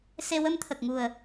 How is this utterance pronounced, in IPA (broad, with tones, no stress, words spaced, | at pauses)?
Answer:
se˧ wə˧mt̪ʰə˨˩k̚ŋu˨˩ə̯